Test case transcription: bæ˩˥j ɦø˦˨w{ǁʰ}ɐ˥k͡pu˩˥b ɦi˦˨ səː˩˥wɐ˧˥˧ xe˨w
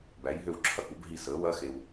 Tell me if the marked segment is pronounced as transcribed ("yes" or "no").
yes